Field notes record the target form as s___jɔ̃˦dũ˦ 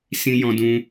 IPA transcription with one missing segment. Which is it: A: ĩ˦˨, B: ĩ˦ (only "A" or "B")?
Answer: B